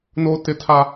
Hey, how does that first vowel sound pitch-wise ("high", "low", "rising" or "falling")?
high